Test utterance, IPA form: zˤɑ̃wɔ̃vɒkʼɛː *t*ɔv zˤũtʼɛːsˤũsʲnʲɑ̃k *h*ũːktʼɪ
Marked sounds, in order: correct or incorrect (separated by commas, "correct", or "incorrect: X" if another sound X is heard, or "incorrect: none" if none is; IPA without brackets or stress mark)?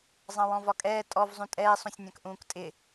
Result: incorrect: tʼ, incorrect: ʔ